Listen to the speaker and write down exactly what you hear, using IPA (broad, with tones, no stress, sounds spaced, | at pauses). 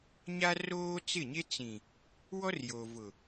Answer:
ɲ a˦ r oː˦ t͡s ɪ˦˨ ɲ e˦ t͡s ĩ˨ | w ɔ˦ r j o˨ v ʊ˨